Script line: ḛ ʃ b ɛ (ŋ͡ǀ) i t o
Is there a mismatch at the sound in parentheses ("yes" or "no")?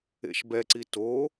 yes